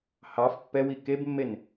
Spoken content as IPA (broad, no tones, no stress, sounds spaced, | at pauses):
h ɑ f pː ɛ w i k e b mː e n